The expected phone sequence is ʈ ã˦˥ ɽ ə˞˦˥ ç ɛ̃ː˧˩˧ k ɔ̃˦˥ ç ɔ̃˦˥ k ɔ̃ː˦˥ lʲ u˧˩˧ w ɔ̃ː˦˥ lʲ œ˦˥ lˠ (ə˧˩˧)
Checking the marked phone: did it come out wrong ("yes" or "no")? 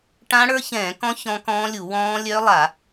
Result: yes